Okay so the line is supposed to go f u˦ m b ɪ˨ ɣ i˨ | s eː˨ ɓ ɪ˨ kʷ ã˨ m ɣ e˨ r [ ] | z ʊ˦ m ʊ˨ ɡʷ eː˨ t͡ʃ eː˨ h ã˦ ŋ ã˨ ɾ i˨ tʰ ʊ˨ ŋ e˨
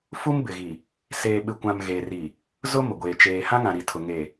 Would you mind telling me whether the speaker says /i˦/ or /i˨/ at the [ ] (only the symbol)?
i˨